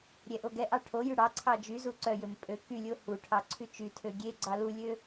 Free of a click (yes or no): no